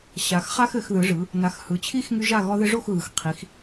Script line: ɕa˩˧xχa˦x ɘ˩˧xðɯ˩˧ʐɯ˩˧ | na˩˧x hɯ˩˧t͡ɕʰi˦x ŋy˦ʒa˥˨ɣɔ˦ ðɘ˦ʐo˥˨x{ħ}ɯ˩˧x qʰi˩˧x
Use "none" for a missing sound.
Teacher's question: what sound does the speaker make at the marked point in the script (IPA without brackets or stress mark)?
ɣ